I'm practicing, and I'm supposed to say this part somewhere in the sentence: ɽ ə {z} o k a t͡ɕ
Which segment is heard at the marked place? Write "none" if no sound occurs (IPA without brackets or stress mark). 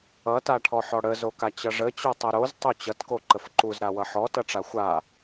z